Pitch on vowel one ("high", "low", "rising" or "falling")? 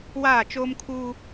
falling